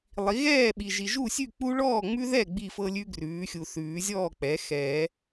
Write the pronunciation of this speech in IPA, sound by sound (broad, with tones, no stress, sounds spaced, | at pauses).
lˠ i˩˥ ɣ ɛː˥˩ ɓ i˨ ʒ i˨ ʒ u˥˩ sʲ ʉ˥˩ k͡p u˦ ɭ ɔː˥˩ ŋ͡m ʉ˦ ð ɛ˥˩ ɡ͡b i˥˩ f ɤ˦ lʲ ʉ˦ ɡ r ʉː˩˥ xʲ u˨ θ ʉː˨˩˦ zʲ ɔː˥˩ k͡p ɛ˩˥ x ɛː˨˩˦